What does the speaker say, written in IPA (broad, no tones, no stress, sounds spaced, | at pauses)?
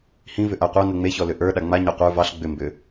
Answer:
h ĩ v ʏ ʔ a qʷ ɑ n ə ŋ͡m e ç ɔ l ʏ ʔ ə˞ ɗ a ŋ͡m a ɲ ɑ qʷ ə˞ v ɑ ɬ ɡ͡b ʏ m b ʏ